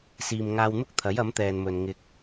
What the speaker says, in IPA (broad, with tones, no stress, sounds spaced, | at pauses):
s iː˨ m ŋ aː˧ w n̪ ʊ˥ k̚ t̪ʰ ɐ˨˥ j ɐ˨˥ m t̪ ɛː˨ n m ɵ˨ n ŋ ɪ˧ k̚